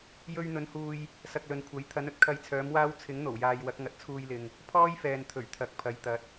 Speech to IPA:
j ɵ˧ ɥ n̪ ɵ˨˥ n h uː˧ j | s ɐ˨ k̚ l ɵ˨ n kʷʰ ɐ˨˥ j t̪ʰ ɐ˨˥ n ɵ˥ t̚ kʰ ɐ˧ j t͡sʰ œː˨˥ m w aː˥ w t͡sʰ ɪ˨˥ ŋ n̪ o˨˩ w j aː˨ j w ɐ˨˥ k̚ ŋ ɐ˨ t̚ t͡sʰ uː˧ j l ɪ˨ ŋ | pʰ ɔː˥ j f ɛː˨ n t̪ʰ ɵ˨˩ ɥ t̪ʰ ɐ˨˥ k̚ pʰ ɐ˨˥ j t̪ ɐ˨˥ t̚

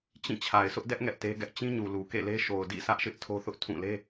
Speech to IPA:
t͡ɕ ĩ˦˨ t͡ɕʰ a˨ ɪ̯ s ʊ˦ ʔ d ɛ˦ ʔ ŋ ɛ˦ ʔ t e˦ ɡ ɛ˦ ʔ t͡ɕ ĩ˦ ɲ u˨ l u˨ k ḛ˦˨ l e˦ ʃ o˨ ʊ̯ d ḭ˦˨ sʰ ä˦ ʔ ʃ ɪ˦ ʔ tʰ o˦ θ ʊ˦ ʔ tʰ ũ˦˨ l e˦

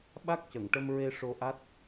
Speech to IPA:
ɓ a˦˥ k̚ c ə˨˩˨ ŋ ʈ ə˧ m ɹ e˧ ʂ o˧ ʔ a˦˥ t̚

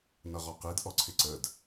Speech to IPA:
n ʌ ʁ ɒ q i d ʔ ɔ ǀʰ ɪ ǀ ə d

